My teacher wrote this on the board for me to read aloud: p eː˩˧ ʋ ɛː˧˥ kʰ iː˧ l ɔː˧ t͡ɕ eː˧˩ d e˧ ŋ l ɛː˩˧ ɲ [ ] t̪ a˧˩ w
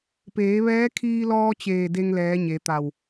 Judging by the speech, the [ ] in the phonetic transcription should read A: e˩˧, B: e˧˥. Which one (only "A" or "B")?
A